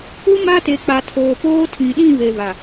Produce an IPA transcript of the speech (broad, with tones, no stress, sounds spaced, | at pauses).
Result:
ʊ˦ m a˦ t e˨ k͡p a˨ tʰ oː˨ p oː˦ tʰ ĩ˨ ɗ ĩ˦˨ β e˨ β a˨